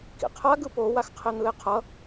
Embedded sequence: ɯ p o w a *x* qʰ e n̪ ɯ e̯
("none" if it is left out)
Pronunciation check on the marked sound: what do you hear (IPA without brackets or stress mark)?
x